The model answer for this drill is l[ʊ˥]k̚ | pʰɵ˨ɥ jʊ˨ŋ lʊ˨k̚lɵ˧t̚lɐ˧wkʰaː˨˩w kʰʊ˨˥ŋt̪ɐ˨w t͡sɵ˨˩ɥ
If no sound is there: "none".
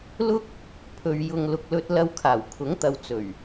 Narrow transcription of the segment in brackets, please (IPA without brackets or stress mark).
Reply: ʊ˥